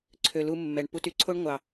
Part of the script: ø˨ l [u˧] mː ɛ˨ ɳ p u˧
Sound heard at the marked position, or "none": u˧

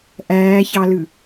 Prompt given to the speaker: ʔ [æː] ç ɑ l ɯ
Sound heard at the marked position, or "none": æː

